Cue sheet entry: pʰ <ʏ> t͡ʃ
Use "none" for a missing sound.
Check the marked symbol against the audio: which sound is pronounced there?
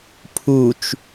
u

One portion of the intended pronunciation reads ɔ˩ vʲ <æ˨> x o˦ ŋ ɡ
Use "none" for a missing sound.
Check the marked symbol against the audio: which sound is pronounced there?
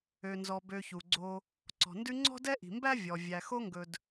æ˨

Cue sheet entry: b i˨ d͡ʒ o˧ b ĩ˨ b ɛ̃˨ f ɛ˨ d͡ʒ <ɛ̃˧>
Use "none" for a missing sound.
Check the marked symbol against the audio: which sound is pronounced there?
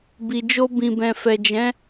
ɛ̃˨˦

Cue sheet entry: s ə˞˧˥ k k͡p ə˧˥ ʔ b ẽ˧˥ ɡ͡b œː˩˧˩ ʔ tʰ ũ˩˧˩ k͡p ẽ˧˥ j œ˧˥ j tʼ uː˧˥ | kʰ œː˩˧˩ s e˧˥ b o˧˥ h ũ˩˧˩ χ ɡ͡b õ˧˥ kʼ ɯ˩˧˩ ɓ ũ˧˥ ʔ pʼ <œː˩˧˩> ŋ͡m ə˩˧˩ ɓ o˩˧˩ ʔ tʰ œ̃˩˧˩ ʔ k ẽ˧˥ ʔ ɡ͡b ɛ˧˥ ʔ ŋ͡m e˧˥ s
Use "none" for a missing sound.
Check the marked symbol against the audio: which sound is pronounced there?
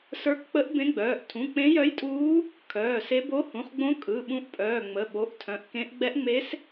œː˩˧˩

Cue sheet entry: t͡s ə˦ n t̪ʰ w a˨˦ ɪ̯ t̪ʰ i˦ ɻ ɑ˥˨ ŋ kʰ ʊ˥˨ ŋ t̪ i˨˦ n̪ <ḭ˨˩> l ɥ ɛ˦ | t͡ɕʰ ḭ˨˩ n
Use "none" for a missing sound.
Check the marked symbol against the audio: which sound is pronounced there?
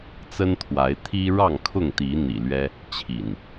ḭ˨˩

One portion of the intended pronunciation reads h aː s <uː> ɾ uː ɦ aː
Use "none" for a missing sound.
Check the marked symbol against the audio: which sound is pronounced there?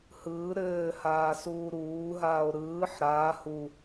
uː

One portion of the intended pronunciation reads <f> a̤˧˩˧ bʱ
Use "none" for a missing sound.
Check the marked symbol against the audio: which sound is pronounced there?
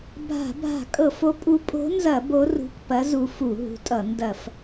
bʱ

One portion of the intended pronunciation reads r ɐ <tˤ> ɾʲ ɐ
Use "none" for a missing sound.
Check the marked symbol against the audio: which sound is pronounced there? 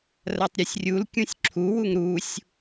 tˤ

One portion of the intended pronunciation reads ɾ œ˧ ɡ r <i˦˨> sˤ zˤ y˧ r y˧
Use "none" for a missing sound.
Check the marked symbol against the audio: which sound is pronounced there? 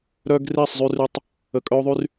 i˦˨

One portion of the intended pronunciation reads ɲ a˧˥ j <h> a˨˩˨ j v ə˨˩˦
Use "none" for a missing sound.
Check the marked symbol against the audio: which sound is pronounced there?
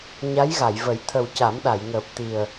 ɣ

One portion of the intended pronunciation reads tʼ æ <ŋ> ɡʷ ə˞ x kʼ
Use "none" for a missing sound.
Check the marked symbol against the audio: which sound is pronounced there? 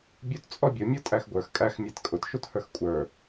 x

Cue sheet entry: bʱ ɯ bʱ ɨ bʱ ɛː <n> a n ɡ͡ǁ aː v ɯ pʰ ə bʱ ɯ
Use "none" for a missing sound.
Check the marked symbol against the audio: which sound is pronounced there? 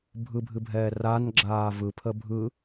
r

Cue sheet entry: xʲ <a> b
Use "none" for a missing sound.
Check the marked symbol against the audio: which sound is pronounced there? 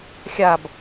a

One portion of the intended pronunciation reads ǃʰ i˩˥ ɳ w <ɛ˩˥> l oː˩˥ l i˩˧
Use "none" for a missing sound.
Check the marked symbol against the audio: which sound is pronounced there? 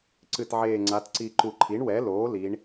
ɛ˩˥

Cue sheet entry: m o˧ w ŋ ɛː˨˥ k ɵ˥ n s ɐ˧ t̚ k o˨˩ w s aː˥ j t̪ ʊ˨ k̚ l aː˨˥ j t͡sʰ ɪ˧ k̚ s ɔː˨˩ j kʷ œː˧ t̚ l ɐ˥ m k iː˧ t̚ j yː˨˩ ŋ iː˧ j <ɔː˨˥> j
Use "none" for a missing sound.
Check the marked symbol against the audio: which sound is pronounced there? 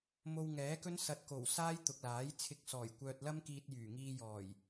ɔː˨˩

